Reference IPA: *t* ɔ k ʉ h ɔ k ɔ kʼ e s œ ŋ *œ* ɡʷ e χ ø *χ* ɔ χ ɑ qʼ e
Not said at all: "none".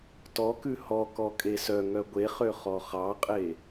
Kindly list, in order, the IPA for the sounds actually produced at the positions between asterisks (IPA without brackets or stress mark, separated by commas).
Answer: t, œ, χ